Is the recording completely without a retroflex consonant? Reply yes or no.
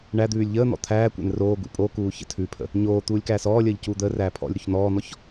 no